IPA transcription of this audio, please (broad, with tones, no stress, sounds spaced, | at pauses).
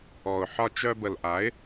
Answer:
ɔ˨ ʊ̯ ħ ɒ˧ t͡ʃ œ˧ b ə˨ l ʔ a˨˦ ɪ̯